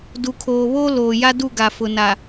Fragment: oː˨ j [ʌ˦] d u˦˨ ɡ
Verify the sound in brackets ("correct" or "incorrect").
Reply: incorrect